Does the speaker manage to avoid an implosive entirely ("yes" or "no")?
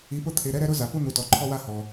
yes